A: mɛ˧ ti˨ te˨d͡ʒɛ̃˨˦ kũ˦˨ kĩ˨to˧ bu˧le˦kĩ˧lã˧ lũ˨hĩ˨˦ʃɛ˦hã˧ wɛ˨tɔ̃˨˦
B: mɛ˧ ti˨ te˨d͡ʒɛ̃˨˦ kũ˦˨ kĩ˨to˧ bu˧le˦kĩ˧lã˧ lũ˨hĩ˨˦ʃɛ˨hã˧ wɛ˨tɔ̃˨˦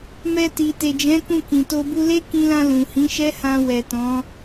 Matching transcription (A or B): A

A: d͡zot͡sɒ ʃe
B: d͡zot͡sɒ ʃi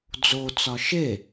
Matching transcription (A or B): A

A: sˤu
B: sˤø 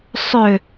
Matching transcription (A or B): B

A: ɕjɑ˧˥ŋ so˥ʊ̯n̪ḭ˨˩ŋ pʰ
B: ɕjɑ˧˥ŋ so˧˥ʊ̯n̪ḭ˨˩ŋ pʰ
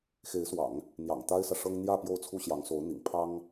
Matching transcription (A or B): B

